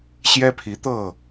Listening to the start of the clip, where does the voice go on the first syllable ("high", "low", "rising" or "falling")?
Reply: high